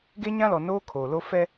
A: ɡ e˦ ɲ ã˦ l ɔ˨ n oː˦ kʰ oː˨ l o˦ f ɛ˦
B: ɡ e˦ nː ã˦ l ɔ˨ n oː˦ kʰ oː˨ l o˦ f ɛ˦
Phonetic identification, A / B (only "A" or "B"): A